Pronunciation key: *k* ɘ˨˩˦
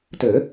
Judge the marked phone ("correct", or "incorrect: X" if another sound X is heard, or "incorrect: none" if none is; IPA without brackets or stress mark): incorrect: t